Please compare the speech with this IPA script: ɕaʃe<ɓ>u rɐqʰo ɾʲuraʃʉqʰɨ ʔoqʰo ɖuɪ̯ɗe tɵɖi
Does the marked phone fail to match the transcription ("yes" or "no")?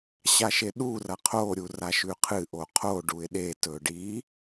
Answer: yes